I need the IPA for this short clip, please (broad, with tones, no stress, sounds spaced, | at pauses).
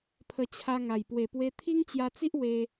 pʰ ə˧ t͡ɕʰ a˧ ŋ a˨˩ j p w e˨˩ p w e˧ t̪ʰ i˦ ŋ t͡ɕ j a˧ t͡s i˦ ʔ w e˧